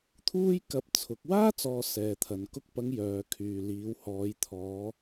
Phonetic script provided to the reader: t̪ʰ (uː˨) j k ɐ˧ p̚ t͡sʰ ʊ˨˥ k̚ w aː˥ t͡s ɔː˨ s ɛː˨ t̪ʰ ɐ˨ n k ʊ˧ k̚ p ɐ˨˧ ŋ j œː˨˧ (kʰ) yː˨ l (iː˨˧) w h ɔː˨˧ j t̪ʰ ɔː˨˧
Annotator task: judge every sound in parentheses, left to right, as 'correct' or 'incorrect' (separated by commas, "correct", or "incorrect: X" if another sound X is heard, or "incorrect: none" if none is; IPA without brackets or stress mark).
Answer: incorrect: uː˥, correct, correct